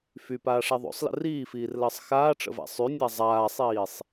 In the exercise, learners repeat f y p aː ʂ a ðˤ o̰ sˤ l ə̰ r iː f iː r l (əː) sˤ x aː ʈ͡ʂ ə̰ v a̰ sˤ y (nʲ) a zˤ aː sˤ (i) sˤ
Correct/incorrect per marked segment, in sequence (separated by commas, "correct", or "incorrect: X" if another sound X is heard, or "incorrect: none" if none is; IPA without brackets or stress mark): correct, correct, incorrect: iː